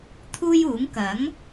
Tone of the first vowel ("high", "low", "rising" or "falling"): high